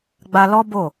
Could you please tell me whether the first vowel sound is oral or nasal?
oral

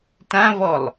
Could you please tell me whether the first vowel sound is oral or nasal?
nasal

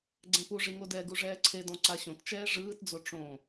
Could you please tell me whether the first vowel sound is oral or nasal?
nasal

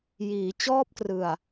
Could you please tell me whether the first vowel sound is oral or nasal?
oral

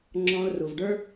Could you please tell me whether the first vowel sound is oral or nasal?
nasal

